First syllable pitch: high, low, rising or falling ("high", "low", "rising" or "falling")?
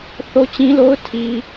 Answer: high